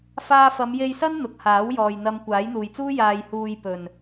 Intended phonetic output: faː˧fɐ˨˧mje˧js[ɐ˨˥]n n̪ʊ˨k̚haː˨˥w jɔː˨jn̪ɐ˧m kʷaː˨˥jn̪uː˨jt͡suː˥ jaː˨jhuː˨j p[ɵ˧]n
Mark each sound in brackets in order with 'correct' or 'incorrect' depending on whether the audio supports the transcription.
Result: incorrect, incorrect

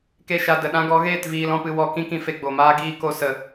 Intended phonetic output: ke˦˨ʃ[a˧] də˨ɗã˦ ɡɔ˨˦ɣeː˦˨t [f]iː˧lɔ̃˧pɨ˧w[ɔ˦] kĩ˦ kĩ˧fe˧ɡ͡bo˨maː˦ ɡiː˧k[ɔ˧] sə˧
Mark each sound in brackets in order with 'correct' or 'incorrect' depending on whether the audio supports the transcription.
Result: correct, incorrect, incorrect, incorrect

